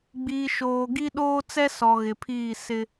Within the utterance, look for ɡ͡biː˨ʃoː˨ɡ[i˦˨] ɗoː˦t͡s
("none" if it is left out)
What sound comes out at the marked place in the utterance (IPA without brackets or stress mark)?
i˦